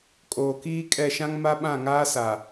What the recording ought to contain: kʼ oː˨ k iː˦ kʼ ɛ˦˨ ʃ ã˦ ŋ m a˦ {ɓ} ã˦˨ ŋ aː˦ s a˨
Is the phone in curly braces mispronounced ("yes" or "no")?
no